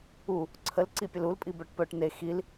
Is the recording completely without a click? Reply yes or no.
no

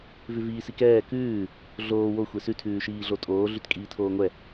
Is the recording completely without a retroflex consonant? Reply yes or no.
yes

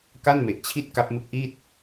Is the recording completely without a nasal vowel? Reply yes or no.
yes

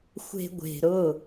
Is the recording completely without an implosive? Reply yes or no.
yes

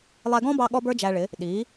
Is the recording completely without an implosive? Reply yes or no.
no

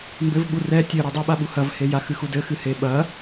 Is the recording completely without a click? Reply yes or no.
yes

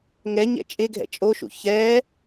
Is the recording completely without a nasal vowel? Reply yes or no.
yes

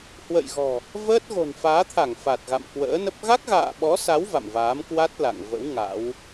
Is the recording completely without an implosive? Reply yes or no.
no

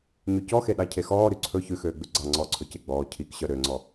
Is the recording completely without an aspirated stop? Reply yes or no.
no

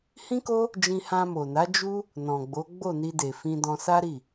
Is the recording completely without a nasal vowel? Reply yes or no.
no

